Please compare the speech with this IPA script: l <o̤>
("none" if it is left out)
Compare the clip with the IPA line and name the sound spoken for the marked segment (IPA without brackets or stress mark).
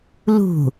ṳ